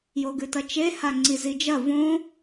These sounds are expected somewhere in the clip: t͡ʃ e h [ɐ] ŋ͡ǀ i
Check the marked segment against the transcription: incorrect: a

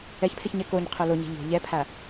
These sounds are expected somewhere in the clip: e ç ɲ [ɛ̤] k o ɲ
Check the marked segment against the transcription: incorrect: ɛ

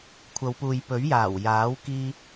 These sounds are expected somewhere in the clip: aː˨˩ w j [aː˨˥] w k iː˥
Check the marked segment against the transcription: correct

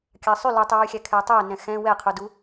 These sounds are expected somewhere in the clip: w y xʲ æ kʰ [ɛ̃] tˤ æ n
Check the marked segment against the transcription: incorrect: ɛ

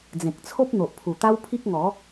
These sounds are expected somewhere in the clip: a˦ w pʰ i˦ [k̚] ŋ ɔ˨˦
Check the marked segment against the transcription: correct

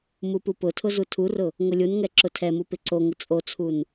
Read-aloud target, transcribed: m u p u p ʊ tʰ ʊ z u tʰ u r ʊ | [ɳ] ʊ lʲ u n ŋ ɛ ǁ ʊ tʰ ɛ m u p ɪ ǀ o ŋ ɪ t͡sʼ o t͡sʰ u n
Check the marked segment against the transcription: incorrect: ŋ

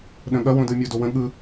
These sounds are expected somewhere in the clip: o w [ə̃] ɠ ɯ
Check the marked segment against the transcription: correct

